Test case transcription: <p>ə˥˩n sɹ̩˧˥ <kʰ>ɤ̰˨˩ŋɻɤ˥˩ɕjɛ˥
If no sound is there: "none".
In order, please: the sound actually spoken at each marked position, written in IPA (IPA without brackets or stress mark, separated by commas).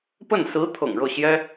p, t̪ʰ